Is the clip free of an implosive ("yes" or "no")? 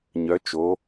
yes